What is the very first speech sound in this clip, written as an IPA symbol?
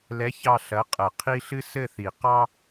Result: l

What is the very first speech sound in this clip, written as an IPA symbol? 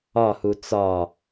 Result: ɒ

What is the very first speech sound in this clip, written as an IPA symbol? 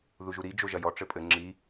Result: ð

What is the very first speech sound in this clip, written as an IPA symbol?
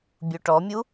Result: bʲ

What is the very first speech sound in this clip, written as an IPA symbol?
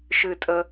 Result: ʃ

